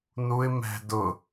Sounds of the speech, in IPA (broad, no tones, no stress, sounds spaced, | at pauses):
n u ɪ̯ m ɛ̤ d ʊ